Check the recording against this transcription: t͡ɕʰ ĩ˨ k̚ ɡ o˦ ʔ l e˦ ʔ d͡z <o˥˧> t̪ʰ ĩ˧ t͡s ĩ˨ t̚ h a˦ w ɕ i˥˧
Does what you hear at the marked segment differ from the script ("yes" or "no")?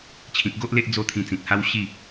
yes